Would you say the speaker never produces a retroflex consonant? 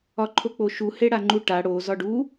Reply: no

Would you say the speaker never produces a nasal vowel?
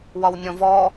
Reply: no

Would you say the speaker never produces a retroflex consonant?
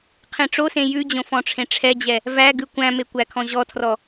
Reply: no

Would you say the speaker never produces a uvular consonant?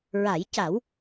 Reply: yes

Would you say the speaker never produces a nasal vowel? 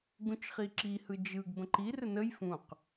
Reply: no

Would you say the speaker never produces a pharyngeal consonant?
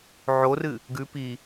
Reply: no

